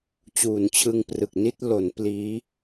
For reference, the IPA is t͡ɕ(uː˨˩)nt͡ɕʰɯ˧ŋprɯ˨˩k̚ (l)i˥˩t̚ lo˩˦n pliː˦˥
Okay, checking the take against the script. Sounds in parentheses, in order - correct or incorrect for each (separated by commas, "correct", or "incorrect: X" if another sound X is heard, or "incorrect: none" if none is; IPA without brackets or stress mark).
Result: correct, incorrect: n